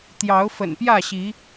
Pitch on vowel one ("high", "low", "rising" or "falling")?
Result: rising